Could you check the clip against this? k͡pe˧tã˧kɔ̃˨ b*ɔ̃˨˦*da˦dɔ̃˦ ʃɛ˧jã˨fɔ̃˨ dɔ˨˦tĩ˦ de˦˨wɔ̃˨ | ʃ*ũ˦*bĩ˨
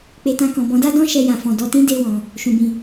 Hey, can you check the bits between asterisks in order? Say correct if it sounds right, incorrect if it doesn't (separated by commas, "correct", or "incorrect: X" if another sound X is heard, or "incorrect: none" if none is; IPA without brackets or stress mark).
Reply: correct, incorrect: ũ˨